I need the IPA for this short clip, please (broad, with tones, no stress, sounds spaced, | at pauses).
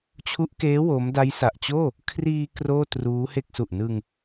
t͡ɕʰ u˦˥ ʔ k eː˦˥ w o˦˥ m d a˦˥ j s a˨˩ ʔ t͡ɕ oː˥˩ | kʰ r iː˧ k r oː˥˩ t r uː˦˥ h e˥˩ k̚ s u˨˩ ʔ n ɯ˧ ŋ